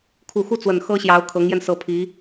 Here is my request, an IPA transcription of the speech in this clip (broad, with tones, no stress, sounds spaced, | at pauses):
kʰ u˨˩ x u˥˩ t͡s w ə˨˩ n x ɤ˥ ɕ j ɑ˧˥ ʊ̯ kʰ ɤ˧˥ ŋ j ɛ˧ n s ɤ˧˥ pʰ i˧˥